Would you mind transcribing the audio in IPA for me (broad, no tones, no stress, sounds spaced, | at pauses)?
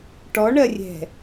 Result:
ʈ ɔ ɳ ɜ rʲ ɛ̤